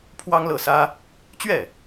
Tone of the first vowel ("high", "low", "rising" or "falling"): high